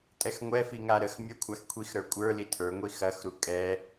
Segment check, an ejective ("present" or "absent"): present